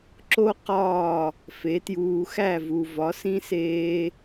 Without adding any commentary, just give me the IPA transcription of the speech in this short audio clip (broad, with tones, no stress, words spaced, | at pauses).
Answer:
ǁo˥ qɒː˥˩ | fe˩˥tjuː˧ xæ˥˩vu˩ vɒ˩˥sĩ˥seː˧